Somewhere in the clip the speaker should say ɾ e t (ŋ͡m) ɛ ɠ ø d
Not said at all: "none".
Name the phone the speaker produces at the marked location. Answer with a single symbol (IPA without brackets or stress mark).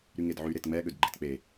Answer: ŋ͡m